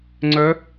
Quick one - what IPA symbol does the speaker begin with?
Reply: ŋ͡ǀ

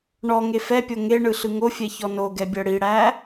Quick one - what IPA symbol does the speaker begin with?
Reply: ɳ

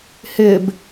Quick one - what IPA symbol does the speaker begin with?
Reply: h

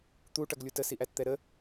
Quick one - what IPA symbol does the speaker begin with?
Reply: t̪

